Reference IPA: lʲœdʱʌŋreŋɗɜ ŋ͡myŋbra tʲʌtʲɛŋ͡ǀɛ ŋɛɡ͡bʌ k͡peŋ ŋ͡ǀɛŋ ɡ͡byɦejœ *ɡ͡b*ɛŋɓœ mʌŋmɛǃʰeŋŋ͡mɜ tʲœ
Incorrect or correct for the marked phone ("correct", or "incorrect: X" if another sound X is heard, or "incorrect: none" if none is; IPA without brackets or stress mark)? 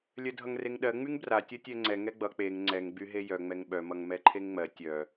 incorrect: ŋ͡m